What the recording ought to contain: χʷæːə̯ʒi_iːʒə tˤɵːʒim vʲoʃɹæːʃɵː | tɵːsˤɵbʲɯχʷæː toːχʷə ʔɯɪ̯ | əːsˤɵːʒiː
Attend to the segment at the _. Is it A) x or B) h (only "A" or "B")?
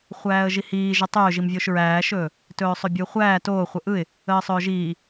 B